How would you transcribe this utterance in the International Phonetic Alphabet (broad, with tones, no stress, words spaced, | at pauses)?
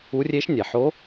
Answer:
u˧˥rʲe˧˥ʃ nʲɛ˩ħo˧˥